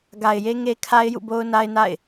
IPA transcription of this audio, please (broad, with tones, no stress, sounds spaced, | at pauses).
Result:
ɡ a˨ ɪ̯ j e˦ ŋ e˦ kʰ a˦ ɪ̯ j ṵ˦˨ b o˦ ʊ̯ n a˦ ɪ̯ n a̰˦˨ ɪ̯